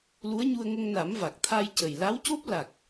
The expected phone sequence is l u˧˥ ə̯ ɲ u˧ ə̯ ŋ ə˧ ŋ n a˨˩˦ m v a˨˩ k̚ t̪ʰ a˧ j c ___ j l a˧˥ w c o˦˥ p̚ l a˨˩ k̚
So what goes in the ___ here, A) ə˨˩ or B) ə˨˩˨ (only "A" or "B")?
A